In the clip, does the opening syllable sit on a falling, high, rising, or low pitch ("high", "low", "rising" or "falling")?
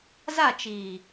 falling